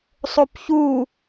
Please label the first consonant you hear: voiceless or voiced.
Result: voiceless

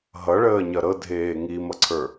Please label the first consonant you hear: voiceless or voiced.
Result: voiced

